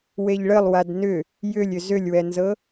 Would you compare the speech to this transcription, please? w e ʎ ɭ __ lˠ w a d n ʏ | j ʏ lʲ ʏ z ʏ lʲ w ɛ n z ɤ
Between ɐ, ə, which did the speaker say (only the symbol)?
ə